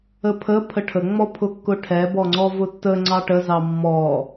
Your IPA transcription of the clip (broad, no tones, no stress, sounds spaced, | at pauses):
ə pʰ ə pʰ ə ʈʰ ə ŋ͡m ɔ pʰ ʊ kː ʊ ʈʰ ɛ b ɔ ŋ͡ǀ ɔ v ʊ tː ə ŋ͡ǀ ɑ ʈ ə z ɑ mː ɔ